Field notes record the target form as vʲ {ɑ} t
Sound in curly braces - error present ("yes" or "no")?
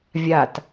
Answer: yes